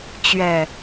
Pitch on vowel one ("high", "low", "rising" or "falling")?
low